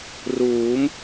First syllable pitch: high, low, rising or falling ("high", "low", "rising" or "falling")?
rising